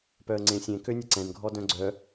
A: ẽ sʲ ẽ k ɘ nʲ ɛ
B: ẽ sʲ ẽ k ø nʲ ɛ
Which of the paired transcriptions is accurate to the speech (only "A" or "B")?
B